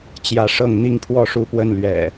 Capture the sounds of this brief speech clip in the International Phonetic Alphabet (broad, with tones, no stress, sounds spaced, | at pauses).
t͡ɕ j ä˨˦ ʂ ɤ˥˨ ŋ n̪ i˥˨ ŋ pʰ w ɔ˥˨ ʂ u˥˨ p w ə˥˨ n l ɥ ɛ̰˨˩